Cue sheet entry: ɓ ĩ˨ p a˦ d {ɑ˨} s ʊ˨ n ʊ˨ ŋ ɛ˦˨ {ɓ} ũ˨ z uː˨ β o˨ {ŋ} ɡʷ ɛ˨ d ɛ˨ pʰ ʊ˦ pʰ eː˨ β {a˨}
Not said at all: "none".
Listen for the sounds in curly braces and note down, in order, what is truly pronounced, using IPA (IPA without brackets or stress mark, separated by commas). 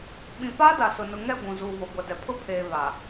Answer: a˨, ɡʷ, none, a˨